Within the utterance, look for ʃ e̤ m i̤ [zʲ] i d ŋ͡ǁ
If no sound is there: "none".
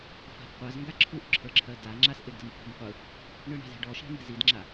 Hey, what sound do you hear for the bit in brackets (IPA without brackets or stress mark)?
z